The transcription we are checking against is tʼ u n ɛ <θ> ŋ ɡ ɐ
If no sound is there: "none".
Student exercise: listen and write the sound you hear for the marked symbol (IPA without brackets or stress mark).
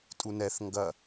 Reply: θ